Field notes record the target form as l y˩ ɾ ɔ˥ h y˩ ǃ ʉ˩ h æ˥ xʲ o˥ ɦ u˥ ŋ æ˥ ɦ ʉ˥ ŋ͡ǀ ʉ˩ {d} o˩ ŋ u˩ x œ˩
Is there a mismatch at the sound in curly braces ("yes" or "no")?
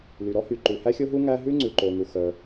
yes